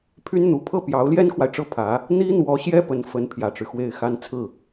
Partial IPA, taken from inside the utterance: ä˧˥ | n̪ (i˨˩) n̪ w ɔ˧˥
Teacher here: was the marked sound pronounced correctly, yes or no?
no